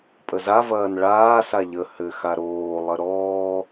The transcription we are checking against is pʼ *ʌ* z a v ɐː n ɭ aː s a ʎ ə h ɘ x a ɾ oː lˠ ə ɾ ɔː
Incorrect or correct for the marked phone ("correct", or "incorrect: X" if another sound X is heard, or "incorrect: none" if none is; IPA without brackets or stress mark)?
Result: incorrect: ə